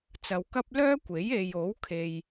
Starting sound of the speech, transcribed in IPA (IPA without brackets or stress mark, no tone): t͡s